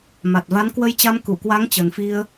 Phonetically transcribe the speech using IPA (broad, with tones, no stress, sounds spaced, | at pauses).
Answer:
m a˨˩ t̚ v a˨˦ n k w ə˧ j t͡ɕ a˧ m k u˧˩ k w a˨˦ ŋ t͡ɕ ə˨˩ n f i˧ ə̯